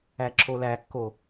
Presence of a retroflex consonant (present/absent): absent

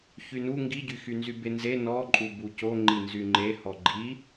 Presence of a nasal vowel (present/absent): absent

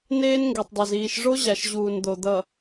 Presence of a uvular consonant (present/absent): absent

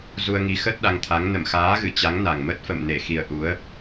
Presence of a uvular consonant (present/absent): absent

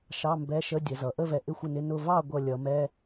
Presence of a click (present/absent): absent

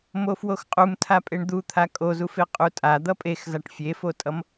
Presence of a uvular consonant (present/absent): present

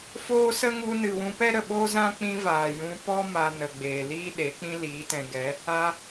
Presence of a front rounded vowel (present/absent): absent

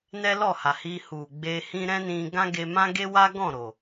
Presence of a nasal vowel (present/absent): present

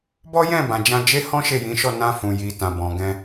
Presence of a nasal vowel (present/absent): present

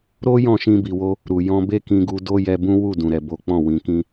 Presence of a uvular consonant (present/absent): absent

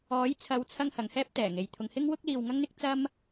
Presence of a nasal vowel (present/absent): absent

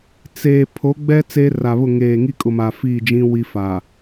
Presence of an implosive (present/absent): absent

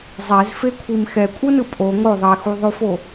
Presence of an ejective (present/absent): present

